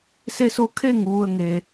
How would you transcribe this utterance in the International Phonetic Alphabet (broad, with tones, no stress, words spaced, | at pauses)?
se˧so˧ kʰe˥˨ŋ ʋu˧ə̯ŋe˩